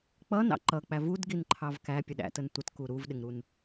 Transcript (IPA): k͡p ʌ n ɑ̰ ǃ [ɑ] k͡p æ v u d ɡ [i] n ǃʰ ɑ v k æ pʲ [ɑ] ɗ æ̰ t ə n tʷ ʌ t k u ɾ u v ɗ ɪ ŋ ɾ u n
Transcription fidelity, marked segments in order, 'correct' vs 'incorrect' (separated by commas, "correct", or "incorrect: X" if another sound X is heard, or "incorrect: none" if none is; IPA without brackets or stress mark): incorrect: ʌ, correct, incorrect: ə